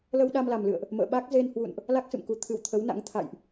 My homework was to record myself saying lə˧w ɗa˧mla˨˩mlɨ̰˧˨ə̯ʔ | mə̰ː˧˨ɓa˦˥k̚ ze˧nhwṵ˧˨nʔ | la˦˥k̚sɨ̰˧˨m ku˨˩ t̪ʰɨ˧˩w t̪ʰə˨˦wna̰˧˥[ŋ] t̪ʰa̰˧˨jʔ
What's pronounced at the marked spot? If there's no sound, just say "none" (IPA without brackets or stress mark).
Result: ŋ